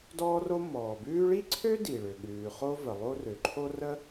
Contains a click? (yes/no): yes